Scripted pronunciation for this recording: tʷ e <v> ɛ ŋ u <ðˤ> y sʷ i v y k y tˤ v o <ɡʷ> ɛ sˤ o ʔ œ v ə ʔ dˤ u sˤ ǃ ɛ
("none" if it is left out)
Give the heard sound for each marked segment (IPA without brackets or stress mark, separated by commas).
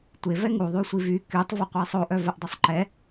v, ðˤ, qʷ